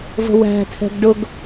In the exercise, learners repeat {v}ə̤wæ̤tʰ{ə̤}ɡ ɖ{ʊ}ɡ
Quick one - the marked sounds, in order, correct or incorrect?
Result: correct, incorrect: ɛ̤, correct

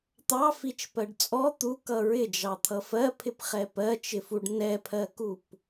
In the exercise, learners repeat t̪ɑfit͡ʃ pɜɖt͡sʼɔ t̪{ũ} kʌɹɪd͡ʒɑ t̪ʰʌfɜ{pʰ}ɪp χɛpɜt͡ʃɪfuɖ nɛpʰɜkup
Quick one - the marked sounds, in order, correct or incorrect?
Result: incorrect: u, correct

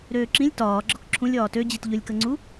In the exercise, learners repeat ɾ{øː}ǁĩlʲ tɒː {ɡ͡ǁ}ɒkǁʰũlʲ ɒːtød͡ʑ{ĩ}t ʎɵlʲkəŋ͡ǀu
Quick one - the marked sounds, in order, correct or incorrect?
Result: correct, correct, incorrect: i

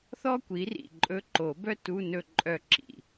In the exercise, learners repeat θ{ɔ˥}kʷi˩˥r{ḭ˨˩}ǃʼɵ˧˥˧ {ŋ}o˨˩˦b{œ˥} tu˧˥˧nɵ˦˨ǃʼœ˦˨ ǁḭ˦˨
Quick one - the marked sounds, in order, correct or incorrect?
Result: correct, correct, incorrect: ǃ, correct

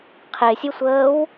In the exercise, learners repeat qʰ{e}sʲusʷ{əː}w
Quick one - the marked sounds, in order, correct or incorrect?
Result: correct, correct

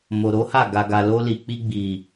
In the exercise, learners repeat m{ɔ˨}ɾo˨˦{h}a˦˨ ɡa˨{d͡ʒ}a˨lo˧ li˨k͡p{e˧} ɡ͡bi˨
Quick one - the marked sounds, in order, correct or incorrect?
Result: incorrect: o˨, correct, incorrect: ɡ, incorrect: i˧

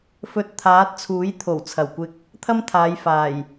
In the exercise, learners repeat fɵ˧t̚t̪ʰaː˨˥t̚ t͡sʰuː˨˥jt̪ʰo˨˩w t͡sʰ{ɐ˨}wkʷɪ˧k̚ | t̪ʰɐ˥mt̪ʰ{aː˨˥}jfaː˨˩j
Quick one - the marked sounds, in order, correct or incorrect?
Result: incorrect: ɐ˨˩, incorrect: aː˨˧

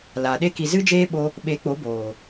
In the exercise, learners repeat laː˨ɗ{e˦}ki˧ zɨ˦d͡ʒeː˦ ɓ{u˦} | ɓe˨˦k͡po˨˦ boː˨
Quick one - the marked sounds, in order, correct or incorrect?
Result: correct, incorrect: o˦

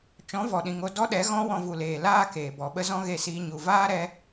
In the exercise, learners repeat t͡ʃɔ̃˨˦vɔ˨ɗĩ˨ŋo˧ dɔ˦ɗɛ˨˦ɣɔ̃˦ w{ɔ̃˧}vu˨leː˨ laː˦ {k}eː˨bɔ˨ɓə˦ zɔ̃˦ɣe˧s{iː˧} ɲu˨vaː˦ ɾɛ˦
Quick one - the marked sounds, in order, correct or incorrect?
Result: correct, correct, correct

